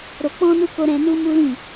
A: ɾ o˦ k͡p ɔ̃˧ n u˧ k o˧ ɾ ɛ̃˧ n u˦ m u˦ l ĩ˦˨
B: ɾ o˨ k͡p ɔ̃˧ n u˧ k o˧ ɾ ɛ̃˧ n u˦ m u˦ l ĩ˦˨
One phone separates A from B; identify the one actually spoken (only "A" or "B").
B